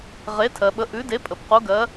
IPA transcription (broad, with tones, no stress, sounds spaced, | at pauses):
ʁ e˨˥ tʰ ɜ˩˧ ɓ ə˨˥ ʔ ʉ˨˥ d e˨˥ pʼ ə˩˧ p q u˨˥ ɡ ɜ˨˥